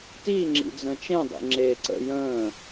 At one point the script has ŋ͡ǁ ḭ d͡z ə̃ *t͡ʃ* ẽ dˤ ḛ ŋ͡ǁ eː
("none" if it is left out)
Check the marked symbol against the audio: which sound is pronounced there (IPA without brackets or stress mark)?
t͡ʃ